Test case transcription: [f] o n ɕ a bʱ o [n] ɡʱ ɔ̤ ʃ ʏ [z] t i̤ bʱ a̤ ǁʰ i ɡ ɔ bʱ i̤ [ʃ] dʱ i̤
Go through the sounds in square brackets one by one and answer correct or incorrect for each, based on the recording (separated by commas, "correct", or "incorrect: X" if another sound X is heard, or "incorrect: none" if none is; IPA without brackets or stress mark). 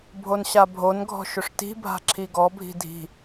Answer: incorrect: bʱ, correct, incorrect: ʂ, incorrect: none